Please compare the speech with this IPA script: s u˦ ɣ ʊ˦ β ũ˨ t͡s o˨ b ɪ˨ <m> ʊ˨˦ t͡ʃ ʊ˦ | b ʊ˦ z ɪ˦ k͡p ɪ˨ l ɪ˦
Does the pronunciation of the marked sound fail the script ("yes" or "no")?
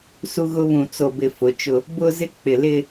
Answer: yes